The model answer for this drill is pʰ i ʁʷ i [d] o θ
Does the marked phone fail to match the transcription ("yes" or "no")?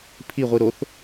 yes